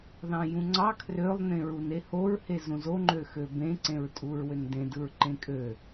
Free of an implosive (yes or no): yes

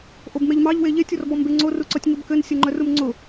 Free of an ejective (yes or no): yes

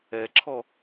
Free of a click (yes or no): no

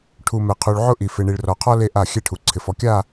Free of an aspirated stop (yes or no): no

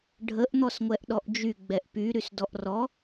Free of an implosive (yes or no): no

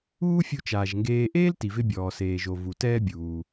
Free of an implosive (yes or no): yes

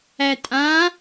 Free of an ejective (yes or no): no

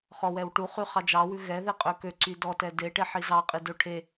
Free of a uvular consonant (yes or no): no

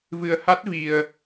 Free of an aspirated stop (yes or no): yes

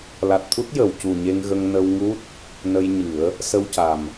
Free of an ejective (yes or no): yes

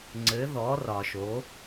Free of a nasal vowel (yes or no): yes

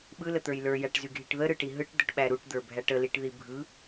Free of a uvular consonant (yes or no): yes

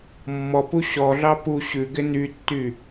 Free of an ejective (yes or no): yes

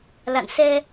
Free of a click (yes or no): yes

